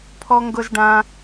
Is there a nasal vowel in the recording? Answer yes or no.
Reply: yes